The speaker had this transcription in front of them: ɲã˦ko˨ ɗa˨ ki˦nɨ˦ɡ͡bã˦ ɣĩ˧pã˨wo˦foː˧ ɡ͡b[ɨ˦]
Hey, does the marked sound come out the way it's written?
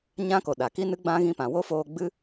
yes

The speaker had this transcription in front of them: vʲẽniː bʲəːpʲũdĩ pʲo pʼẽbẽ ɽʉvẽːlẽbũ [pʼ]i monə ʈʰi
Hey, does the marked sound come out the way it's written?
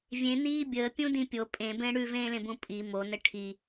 yes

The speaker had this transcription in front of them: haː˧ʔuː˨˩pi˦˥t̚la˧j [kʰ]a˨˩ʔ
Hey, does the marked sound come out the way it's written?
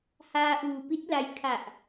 yes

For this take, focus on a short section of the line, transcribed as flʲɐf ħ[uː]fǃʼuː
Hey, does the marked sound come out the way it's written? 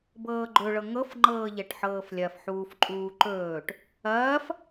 yes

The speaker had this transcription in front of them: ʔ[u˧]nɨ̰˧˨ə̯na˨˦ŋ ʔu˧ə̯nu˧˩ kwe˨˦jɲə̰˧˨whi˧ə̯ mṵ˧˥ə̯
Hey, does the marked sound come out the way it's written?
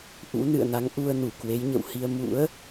no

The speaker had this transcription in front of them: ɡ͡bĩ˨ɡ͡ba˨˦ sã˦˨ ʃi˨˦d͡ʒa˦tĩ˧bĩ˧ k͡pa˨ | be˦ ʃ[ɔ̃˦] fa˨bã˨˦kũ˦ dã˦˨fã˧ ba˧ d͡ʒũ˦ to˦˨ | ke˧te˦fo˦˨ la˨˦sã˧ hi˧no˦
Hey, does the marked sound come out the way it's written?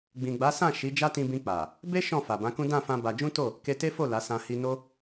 no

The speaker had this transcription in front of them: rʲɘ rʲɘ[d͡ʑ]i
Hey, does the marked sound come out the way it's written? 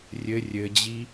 yes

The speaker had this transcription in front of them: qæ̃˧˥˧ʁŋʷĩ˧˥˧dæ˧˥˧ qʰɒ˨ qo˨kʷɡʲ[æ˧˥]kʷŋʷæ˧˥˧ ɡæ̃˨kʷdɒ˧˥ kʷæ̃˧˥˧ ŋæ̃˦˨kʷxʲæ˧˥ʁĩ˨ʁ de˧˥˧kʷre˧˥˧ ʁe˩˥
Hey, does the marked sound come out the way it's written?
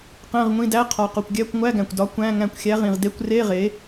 no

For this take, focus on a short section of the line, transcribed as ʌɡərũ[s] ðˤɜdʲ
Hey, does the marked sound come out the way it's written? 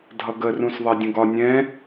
yes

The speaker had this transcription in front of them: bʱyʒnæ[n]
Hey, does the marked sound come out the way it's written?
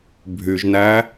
no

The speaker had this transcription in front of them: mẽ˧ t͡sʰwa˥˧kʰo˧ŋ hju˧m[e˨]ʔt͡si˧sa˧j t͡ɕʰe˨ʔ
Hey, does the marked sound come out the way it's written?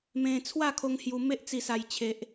no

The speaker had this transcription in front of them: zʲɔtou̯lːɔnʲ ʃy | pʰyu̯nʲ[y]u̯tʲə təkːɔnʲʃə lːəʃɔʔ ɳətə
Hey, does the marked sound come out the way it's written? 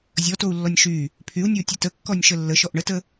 no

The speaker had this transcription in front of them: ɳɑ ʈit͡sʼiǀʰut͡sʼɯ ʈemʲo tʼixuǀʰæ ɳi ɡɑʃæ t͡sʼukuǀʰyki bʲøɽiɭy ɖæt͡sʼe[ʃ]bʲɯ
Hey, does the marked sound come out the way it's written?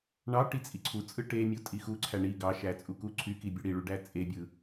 no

